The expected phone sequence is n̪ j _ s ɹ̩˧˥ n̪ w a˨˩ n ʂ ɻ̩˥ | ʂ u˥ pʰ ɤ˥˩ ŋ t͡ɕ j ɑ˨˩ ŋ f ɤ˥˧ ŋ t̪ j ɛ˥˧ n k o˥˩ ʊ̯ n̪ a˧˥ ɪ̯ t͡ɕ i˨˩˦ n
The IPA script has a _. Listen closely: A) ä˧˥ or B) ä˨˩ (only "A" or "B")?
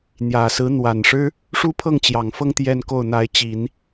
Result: B